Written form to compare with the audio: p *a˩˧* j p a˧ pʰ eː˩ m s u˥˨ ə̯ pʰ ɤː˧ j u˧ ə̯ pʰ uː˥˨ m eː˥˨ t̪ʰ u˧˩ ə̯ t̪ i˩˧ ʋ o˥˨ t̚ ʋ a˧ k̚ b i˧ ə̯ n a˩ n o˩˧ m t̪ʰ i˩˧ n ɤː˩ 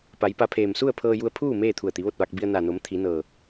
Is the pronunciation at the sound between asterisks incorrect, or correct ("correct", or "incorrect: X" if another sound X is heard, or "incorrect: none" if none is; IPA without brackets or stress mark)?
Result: correct